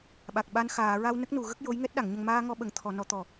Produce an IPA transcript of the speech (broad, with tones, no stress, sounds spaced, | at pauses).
ɓ a˨˩ k̚ ɓ a˧ n x aː˨˩˨ ɹ a˧ w n ə˦˥ k̚ n u˨˩˨ ɣ ə˦˥ k̚ j o˧˥ j ŋ ɛ˦˥ t̚ ɗ a˨˩˨ ŋ ɲ ə˨˩ ŋ m aː˧ ŋ ɔ˧ ɓ ə˨˩ ŋ t̪ʰ ɔ˨˩˨ n ɔ˨˩˦ t̪ ɔ˨˩˨